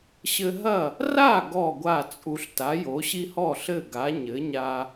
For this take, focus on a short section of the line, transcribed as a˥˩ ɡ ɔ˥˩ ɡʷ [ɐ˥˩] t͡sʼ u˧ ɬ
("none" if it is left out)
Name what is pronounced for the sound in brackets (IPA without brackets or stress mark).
a˥˩